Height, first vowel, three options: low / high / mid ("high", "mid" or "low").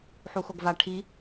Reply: high